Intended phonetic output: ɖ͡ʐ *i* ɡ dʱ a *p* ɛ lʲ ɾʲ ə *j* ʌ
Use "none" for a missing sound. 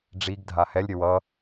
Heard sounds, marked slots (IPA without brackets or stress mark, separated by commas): i, h, w